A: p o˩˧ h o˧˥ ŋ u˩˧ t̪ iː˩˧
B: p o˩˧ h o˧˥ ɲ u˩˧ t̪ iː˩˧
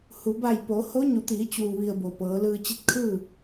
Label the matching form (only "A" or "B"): B